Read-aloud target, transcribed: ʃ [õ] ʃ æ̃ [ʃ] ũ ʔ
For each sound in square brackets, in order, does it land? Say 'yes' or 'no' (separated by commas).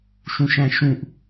no, yes